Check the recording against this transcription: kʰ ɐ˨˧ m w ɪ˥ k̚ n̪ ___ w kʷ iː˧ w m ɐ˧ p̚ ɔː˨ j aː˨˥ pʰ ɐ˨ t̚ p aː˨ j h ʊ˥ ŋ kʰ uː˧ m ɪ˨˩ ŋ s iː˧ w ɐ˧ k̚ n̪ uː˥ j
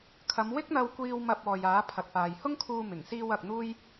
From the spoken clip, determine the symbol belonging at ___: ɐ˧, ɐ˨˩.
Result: ɐ˧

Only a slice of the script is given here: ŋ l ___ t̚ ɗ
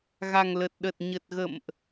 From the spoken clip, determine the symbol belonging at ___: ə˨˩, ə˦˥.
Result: ə˨˩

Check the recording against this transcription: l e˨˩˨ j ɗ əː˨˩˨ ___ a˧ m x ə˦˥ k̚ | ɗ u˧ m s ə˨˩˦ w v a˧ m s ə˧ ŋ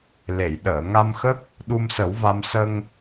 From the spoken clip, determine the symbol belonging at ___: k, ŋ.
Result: ŋ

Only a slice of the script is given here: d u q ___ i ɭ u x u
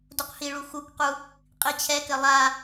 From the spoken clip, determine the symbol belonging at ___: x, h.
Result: h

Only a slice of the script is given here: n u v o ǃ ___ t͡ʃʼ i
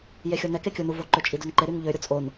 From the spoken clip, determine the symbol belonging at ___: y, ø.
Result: ø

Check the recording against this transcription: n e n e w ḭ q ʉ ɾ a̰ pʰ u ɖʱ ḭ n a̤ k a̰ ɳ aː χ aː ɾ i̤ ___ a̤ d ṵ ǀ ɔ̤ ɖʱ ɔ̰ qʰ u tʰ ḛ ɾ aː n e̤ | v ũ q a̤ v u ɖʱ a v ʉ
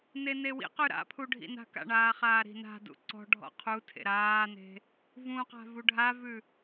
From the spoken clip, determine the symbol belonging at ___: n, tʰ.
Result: n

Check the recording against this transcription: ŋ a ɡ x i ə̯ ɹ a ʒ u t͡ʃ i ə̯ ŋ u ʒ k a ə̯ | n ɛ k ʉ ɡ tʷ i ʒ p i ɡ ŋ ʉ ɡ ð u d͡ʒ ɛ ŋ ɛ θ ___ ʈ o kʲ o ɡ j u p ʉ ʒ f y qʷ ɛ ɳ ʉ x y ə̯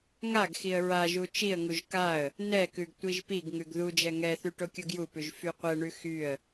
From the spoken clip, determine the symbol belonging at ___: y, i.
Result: y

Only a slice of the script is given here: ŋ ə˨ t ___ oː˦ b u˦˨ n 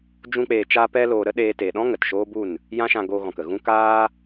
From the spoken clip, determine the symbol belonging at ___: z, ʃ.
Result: ʃ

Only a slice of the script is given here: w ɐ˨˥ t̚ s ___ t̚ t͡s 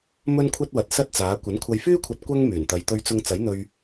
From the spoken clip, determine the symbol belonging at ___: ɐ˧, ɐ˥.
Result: ɐ˥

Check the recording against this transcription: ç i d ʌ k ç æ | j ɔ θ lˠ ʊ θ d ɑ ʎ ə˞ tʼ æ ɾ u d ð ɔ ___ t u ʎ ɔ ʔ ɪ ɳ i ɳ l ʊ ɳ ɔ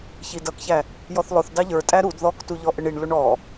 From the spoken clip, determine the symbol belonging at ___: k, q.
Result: k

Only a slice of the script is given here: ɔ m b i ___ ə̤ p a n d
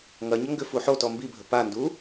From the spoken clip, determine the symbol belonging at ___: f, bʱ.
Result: bʱ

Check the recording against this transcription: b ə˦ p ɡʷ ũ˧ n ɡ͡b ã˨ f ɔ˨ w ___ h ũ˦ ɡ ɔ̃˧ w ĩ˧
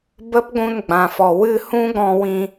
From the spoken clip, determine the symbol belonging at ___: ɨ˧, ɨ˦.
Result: ɨ˧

